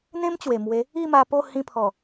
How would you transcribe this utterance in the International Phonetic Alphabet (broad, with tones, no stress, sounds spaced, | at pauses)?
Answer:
n̪ ẽ˦ m t͡ɕ w e˨˩ m w e˨˦ | i˥˧ m a˧ p o˥˧ h ĩ˧ pʰ ɔ˨˩